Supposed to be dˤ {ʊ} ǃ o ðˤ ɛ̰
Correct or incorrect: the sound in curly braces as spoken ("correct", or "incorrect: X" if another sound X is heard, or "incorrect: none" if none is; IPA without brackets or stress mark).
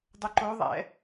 correct